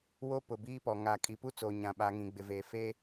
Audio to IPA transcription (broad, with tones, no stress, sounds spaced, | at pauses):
w o˦ p ʊ˨ b iː˦ p ɔ˨ ŋ aː˨ kʼ i˨ p u˦ t͡s o˨ ɲ ã˨ ɓ a˨˦ ŋ ĩ˨ ɡ͡b ɪ˨ v eː˨ f eː˦